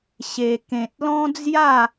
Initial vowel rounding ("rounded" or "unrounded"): unrounded